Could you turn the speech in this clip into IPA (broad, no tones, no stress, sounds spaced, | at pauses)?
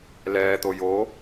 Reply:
l ɛː t̪ o j o